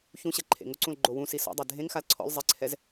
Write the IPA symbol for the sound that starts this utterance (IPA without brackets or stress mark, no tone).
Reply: ç